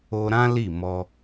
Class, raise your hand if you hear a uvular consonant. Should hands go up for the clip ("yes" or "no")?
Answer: no